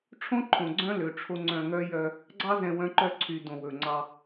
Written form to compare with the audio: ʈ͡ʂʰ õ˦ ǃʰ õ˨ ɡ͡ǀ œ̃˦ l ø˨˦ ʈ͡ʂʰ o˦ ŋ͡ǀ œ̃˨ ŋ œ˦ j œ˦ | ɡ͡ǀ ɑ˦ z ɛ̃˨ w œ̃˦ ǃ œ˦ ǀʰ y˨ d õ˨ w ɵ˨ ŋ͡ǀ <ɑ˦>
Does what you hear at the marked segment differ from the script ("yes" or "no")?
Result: no